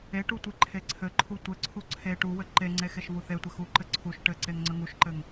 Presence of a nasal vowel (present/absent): absent